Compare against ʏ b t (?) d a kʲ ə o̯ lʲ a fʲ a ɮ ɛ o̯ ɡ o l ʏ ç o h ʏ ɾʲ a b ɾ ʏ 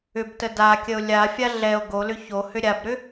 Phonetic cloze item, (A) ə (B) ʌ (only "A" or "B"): A